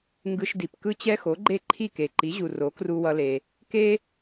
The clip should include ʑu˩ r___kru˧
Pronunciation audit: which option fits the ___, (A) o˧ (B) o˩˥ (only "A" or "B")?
B